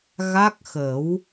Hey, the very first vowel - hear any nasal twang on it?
no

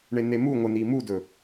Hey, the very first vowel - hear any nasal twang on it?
no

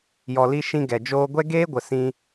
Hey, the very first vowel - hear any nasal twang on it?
no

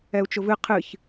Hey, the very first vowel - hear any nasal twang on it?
no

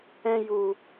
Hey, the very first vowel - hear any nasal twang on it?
yes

